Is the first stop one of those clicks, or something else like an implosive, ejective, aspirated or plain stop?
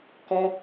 plain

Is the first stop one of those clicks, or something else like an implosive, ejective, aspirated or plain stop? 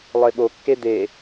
implosive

